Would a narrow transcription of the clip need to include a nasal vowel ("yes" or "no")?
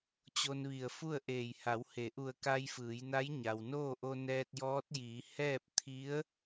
no